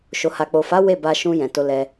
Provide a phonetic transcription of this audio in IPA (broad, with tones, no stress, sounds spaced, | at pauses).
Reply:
ʃ o˨ h a˨ k͡p o˨ f a˨˦ w e˦˨ b a˧ ʃ ũ˧ j ɛ̃˨ t o˧ l ɛ˧